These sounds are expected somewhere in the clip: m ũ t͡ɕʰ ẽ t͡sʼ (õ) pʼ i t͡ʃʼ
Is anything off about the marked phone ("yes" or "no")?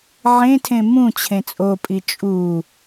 yes